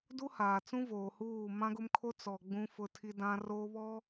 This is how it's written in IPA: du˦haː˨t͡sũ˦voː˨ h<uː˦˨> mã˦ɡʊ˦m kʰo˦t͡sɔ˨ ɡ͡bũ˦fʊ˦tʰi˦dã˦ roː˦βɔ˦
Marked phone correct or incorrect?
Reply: correct